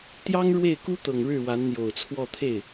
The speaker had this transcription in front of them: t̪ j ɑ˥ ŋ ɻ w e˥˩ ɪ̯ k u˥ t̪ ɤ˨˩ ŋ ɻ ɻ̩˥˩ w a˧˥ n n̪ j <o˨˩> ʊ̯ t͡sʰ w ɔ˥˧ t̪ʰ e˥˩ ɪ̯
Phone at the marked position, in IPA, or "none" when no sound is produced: o˨˩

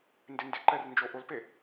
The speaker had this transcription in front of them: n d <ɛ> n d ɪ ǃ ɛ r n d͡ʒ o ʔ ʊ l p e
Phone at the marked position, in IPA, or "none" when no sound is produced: ɪ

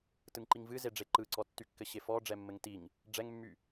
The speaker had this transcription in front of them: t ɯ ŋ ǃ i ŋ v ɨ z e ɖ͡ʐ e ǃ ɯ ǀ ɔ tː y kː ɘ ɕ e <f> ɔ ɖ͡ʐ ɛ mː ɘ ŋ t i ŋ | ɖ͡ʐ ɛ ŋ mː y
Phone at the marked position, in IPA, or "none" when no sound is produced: f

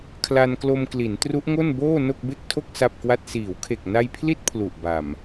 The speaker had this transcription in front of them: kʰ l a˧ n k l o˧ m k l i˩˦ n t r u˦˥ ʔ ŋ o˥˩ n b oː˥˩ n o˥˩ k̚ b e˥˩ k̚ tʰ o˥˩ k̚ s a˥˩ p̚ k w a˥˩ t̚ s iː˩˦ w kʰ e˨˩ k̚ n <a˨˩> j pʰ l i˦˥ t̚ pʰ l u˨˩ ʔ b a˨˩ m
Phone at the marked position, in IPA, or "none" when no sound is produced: a˧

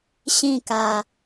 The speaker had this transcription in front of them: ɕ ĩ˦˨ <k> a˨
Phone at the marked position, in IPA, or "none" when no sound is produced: k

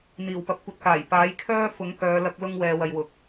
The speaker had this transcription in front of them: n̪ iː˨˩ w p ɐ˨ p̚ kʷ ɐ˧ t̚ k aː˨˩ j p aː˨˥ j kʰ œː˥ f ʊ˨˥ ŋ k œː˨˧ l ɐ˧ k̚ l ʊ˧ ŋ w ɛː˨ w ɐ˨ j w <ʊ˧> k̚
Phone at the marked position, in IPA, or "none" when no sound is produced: ʊ˨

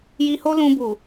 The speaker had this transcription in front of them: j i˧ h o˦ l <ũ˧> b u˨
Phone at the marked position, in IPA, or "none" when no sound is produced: ũ˧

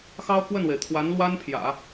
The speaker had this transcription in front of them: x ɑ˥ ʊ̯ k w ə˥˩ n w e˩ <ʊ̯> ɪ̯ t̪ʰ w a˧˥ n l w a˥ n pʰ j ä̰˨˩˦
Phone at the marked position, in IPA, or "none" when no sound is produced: none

